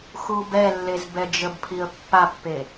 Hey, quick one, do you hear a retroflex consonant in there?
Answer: no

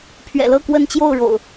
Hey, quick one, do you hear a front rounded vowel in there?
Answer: no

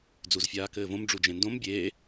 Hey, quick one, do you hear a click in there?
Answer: no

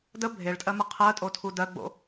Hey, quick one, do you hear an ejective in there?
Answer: yes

